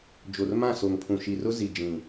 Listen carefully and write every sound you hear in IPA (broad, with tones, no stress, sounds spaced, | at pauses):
d͡ʒ o˨ r m ã˦˨ s o˨ ŋ pʰ ũ˨ ʃ i˨ r ʊ˦ z i˨ d͡ʒ ĩ˨